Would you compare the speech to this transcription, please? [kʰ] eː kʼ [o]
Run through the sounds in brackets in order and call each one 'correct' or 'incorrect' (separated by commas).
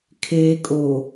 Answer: correct, correct